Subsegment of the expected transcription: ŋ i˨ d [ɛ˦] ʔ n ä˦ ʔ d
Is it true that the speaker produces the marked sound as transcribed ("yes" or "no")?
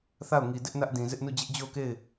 no